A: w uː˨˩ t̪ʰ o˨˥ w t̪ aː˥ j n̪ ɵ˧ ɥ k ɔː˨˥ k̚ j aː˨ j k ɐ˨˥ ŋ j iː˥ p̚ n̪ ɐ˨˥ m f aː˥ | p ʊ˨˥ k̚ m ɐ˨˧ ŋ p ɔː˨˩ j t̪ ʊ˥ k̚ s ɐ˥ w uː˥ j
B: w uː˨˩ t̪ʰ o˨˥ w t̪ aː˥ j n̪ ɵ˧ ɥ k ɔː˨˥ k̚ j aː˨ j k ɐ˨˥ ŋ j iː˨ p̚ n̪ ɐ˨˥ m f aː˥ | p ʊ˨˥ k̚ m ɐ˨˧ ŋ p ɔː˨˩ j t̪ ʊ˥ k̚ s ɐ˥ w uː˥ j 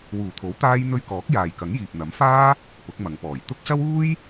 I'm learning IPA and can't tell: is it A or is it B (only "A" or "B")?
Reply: B